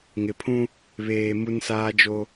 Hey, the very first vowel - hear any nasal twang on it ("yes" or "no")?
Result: no